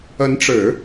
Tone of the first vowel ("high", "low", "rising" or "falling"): rising